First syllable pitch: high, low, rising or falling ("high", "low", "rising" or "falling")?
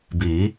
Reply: rising